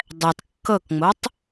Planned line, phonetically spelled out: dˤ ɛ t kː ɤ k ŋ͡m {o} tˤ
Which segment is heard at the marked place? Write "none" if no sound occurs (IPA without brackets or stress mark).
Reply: o